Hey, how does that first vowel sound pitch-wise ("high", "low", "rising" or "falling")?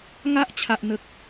high